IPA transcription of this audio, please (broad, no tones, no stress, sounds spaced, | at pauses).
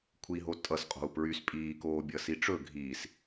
kʷʰ i ɦ o tʼ ʌ s qʼ o̤ u̯ p ɹ y s pʼ iː k oː bʲ ʌ s i ʈ͡ʂ ɵ ɡʱ iː s